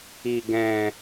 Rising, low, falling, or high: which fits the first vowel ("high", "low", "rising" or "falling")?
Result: low